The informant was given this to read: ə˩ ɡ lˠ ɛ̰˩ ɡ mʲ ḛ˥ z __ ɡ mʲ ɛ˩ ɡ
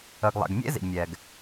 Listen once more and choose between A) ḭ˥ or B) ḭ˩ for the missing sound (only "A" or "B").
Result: B